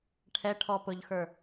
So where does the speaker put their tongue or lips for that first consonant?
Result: retroflex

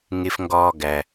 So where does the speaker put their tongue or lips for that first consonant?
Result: velum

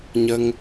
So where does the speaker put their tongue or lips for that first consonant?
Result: palate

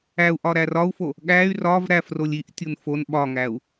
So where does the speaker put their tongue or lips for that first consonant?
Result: throat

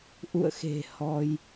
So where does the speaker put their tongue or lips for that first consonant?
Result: throat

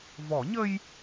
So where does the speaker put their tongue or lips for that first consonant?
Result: lips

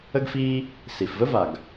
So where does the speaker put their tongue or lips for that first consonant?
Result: velum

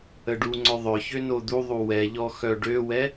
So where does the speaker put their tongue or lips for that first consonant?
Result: retroflex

